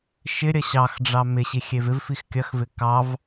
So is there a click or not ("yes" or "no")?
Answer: no